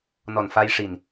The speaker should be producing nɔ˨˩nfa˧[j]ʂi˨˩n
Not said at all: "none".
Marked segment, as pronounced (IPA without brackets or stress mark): j